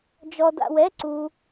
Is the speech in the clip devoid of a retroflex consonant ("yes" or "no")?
yes